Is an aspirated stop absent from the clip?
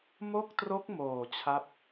no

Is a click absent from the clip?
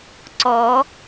no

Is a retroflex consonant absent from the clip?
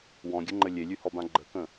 yes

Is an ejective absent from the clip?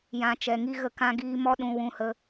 yes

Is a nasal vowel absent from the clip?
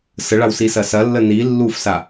yes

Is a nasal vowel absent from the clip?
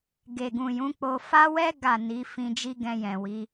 no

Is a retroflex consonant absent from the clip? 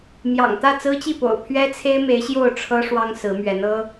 no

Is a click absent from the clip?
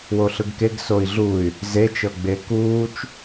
yes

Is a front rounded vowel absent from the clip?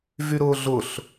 no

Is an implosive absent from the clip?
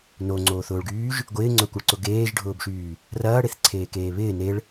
yes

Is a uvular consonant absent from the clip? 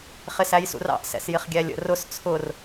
no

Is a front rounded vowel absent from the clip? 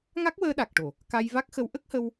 yes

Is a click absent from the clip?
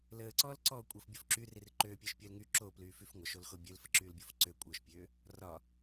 no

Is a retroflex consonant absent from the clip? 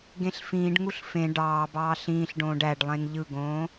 no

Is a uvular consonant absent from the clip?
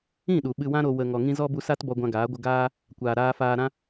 yes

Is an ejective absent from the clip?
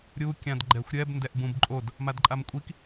no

